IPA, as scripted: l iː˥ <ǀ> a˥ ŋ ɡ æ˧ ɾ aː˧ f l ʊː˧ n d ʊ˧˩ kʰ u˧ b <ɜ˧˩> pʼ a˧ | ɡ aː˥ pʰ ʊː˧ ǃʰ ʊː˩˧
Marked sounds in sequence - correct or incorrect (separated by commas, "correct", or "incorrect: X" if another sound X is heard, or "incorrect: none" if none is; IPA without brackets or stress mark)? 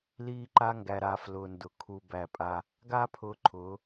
incorrect: ǃ, incorrect: æ˧˩